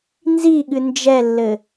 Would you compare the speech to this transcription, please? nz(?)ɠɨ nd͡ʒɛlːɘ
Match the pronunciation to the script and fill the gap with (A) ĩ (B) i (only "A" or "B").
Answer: B